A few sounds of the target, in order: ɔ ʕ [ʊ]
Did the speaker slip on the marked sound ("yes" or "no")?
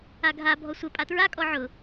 no